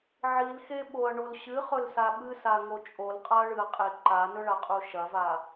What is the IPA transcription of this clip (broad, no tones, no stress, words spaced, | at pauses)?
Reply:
ʕilxeɓoɐ̯ɳol ɕɨχɵlsa ɓɨsaŋo t͡ʃʼolqʼaɐ̯ɭɨɐ̯qʼe ǃanɵɭaqʼu ʃɐva